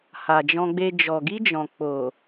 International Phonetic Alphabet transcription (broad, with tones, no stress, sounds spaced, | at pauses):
h a˨ d͡ʒ ɔ̃˧ ɡ͡b e˧ d͡ʒ ɔ˨ ɡ i˧ d͡ʒ ɔ̃˨ k͡p o˨